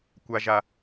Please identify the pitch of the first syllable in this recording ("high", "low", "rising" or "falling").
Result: low